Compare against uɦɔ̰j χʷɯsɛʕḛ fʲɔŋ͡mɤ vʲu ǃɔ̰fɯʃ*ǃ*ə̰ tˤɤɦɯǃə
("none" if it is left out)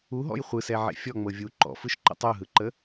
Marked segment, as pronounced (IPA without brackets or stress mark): ǃ